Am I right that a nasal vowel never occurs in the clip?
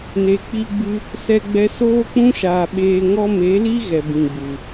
no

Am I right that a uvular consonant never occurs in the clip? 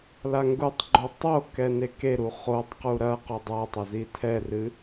no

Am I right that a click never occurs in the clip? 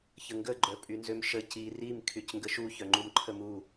no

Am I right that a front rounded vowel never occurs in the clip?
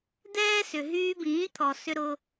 no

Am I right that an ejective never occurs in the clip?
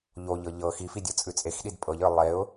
no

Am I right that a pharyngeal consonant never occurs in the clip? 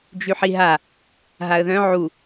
no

